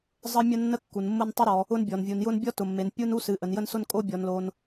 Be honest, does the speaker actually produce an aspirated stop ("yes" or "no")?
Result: no